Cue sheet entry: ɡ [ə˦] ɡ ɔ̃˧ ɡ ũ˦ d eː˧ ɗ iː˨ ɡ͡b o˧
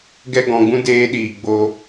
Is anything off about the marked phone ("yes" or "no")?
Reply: yes